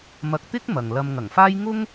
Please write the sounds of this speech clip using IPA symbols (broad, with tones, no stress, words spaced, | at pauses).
mɐ˧k̚ t̪ɪ˥k̚ mɐ˨ŋlɐ˧m ŋɐ˨˩ŋfaː˥j ŋʊ˥ŋ